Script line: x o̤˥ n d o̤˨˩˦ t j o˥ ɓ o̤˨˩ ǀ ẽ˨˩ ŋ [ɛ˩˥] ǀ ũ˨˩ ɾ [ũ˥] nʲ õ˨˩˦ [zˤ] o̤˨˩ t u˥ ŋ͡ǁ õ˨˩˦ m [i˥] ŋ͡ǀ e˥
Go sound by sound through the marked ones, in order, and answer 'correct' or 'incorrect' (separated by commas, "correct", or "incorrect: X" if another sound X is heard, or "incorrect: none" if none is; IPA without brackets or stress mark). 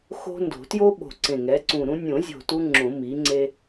correct, correct, incorrect: zʲ, incorrect: i˩˥